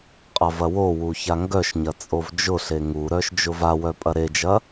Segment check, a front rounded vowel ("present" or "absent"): present